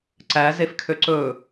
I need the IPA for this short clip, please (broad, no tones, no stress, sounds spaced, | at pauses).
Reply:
ǀ æ z e f kʰ ø ǀ ɵ